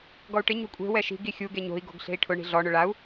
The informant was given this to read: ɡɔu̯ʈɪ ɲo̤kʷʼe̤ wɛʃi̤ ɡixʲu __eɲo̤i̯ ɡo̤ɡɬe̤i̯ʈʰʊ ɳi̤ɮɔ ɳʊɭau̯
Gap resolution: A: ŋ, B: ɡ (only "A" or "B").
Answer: B